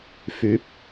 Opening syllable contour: rising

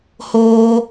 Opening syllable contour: high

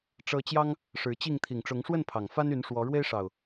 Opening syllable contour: high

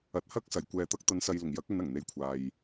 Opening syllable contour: low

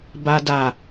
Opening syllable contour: high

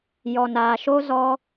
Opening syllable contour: low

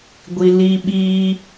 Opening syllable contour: high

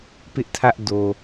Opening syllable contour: high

